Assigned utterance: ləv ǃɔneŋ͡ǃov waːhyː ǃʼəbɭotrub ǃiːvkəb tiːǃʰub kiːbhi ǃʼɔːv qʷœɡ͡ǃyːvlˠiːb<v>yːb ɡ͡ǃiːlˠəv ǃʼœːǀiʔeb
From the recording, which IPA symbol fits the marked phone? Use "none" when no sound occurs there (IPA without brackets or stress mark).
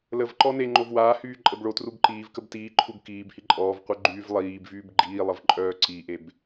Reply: v